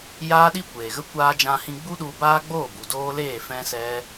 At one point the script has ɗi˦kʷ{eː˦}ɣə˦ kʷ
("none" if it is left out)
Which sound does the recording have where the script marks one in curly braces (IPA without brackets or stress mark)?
eː˨